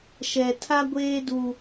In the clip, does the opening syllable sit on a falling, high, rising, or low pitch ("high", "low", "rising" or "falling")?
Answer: low